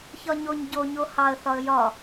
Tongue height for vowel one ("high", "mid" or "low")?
low